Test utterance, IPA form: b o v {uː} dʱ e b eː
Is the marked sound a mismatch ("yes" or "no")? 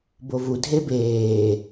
yes